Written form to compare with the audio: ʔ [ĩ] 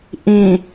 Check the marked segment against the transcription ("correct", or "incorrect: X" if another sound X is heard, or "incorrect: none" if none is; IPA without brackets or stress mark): correct